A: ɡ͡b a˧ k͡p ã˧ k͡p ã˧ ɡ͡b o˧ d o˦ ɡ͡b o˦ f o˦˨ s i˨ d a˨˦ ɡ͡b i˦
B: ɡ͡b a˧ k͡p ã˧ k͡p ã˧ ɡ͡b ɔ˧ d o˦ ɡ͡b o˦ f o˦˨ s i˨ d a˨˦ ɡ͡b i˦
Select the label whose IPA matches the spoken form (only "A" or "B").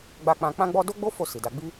B